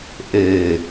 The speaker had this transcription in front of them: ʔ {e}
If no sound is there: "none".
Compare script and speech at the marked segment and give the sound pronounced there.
e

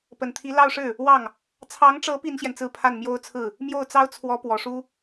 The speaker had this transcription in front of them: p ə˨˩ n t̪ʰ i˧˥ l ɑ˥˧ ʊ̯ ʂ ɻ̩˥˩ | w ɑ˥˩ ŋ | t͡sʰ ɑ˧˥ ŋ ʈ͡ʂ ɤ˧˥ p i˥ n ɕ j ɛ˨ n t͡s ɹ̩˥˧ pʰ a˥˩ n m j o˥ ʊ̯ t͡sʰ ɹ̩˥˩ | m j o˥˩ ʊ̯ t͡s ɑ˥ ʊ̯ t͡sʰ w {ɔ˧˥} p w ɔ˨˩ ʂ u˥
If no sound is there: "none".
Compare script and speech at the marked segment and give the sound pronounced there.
ɔ˧˥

